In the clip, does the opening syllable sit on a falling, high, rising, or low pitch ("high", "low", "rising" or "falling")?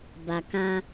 low